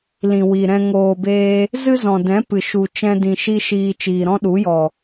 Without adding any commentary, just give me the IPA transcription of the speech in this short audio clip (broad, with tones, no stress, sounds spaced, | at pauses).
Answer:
l ĩ˨ w i˨ ɾ ɛ̃˧ ŋ oː˨ b eː˧ | z ɨ˦ z ɔ̃˨ d ɛ̃˨˦ p ɨ˨ ʃ u˨ t͡ʃ ɛ̃˧ d ĩ˨ ʃ i˦ ʃ iː˧ t͡ʃ iː˨ ɾ ɔ̃˦ ɗ u˨˦ j ɔ˨